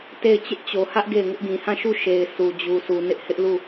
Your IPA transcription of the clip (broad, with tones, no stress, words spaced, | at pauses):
te˦˨ɪ̯ t͡ɕɪ˦ʔt͡ɕo˨hä˦ʔ ɡe˦˨ɪ̯ŋʊ˦ʔɡĩ˨ hã˦˨ʃu˦˨ ʃe˨ɪ̯ su˨d͡ʑu˨su˨ nɪ˦ʔhɪ˦ʔlu˦˨